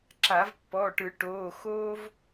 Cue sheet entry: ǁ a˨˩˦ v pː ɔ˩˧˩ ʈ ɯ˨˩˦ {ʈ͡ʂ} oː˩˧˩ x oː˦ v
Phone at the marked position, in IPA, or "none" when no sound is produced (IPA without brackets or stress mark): ʈ